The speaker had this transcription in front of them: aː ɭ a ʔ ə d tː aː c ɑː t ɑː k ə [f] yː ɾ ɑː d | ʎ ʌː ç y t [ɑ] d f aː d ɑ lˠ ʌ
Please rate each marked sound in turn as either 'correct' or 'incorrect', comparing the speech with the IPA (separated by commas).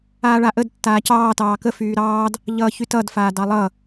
correct, incorrect